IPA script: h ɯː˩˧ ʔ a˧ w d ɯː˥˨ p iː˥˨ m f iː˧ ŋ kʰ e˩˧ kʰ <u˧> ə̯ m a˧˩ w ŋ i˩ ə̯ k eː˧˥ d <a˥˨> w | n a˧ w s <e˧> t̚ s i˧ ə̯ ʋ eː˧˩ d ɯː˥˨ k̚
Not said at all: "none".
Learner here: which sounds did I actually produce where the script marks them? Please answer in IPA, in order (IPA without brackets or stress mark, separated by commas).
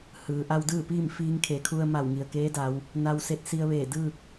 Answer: u˧, a˩˧, e˧